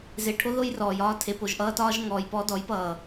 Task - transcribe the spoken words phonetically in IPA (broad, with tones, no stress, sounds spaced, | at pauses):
z e˨ ʈʰ o˦ ð o˦ j r ɔː˨ j ɒː˦ tʰ e˨ p o˨ ʒ ʔ ʌː˦ t ɒː˦ ʒ ŋ ɔː˨ j p ɔ˦ d ɔ˨˦ j p ʌː˨